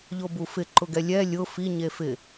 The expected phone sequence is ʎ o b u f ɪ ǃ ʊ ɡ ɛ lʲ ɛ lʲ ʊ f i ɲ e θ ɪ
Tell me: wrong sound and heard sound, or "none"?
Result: θ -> f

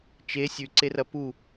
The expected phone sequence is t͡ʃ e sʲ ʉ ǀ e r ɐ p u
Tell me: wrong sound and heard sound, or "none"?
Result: none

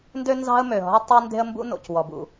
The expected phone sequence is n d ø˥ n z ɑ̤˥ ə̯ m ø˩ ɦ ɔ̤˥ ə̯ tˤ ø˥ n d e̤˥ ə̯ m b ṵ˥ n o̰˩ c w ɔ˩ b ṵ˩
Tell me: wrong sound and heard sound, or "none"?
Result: none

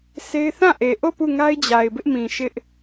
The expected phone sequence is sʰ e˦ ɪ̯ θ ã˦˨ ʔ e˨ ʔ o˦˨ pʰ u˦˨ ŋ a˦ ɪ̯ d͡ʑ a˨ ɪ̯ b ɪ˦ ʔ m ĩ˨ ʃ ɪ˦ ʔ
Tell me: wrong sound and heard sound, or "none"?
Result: pʰ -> p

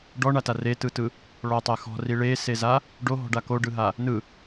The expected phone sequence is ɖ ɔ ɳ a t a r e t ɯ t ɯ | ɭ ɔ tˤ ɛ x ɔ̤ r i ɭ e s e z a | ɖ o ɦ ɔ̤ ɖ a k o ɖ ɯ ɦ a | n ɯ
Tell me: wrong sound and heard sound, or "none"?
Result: none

